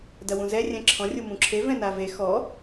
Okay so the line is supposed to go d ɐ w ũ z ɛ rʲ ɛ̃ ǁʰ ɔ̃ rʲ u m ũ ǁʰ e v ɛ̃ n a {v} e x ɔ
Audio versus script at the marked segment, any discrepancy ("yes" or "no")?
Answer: no